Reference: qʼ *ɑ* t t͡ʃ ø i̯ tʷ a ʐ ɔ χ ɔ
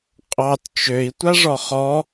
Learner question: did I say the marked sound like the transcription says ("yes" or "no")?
yes